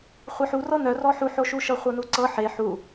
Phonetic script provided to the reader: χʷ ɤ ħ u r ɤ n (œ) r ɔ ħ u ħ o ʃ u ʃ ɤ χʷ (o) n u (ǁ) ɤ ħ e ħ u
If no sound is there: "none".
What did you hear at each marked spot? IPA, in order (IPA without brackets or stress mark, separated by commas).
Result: œ, ɤ, ǀ